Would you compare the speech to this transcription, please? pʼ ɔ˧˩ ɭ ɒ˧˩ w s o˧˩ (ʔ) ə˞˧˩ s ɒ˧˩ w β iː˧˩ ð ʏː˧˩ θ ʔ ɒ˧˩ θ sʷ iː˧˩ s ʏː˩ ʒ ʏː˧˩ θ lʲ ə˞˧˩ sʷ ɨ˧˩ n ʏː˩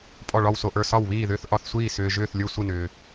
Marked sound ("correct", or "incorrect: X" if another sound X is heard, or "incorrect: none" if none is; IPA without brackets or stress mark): correct